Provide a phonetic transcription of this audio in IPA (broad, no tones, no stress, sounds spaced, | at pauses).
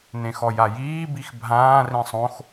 n ẽ x ɔ j a j iː b i x bʱ ãː r ĩ sˤ õ x